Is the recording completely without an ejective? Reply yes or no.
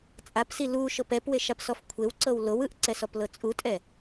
no